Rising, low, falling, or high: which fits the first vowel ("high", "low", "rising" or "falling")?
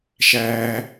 high